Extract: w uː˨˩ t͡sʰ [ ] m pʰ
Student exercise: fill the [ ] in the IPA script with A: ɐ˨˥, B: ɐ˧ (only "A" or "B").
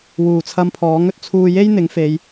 B